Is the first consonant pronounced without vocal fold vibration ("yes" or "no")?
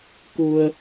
yes